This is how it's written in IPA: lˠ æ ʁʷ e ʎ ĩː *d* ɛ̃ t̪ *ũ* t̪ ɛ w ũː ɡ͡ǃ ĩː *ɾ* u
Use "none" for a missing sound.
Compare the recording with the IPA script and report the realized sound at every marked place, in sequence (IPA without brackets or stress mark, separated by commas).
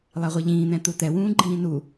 n̪, u, n